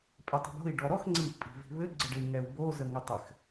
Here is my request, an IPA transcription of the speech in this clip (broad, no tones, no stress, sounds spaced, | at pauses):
pʼ e tˤ i̤ b o̤ i̯ ɖ ɔ ɾ ɔ x ŋ͡ǀ i ʔ pʼ i̤ v i̤ β ɘ ɡ͡ǀ ə ɖ ɘ i̯ ŋ ɛ u̯ b o z ə ŋ ɘ tˤ ɘ x